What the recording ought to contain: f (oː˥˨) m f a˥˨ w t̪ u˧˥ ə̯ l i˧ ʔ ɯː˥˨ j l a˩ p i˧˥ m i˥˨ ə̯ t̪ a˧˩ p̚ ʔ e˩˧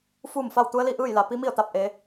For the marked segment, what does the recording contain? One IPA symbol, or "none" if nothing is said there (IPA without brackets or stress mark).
uː˥˨